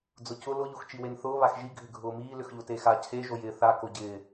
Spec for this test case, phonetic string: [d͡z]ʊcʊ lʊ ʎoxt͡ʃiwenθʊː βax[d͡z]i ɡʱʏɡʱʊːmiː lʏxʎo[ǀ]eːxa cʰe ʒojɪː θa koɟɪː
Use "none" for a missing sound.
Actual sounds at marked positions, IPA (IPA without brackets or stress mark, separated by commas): d͡z, ʒ, t